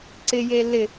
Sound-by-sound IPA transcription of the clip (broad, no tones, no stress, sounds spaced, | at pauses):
ǀ ɪ j e l ɪ